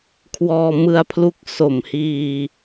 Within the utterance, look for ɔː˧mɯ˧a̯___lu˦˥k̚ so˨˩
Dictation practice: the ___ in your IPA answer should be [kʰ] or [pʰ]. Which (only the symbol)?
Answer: pʰ